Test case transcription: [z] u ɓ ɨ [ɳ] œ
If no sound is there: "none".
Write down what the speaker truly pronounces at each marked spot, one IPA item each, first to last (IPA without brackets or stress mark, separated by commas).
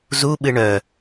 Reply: z, ɳ